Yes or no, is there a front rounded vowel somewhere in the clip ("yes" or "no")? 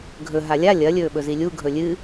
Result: no